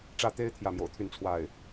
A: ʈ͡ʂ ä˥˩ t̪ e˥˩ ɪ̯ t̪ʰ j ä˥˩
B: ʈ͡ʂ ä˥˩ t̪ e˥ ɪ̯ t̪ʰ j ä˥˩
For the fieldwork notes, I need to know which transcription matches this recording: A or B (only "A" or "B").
B